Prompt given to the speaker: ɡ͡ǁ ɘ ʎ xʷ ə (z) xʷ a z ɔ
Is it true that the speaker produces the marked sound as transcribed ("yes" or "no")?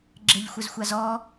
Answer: yes